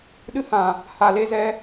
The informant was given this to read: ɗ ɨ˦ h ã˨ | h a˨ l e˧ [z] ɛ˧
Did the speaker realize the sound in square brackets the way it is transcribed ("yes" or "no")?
yes